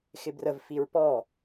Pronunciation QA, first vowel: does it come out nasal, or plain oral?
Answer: oral